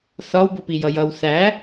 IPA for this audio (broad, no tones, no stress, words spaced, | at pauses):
θɒwbʊpi jʌjʌw θæ